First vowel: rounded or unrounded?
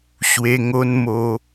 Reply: unrounded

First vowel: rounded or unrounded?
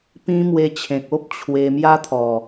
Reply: unrounded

